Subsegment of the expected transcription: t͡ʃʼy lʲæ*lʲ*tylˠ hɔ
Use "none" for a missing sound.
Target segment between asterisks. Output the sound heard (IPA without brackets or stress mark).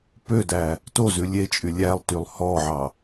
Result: lˠ